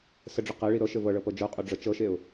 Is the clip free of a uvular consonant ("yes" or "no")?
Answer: no